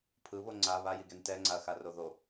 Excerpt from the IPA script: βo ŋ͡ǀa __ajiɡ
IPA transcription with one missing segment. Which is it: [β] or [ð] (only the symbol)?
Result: β